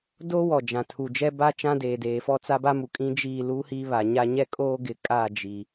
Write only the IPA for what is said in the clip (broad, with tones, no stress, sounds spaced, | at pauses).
d oː˦ w ɔ˨ d͡ʒ ã˨ tʰ u˨ d͡ʒ ɛ˦ b a˦ t͡ʃ ã˦ d eː˨ d eː˨ f ɔ˦ t͡s a˦ b a˦ m u˨ kʼ ĩ˦ d͡ʒ iː˦˨ l u˦ h i˦ β a˨ ɲ a˦ ɲ ɛ˦ kʼ oː˦ ɡ ɪ˨ kʼ a˦˨ d͡ʒ i˨